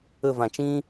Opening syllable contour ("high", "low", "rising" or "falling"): falling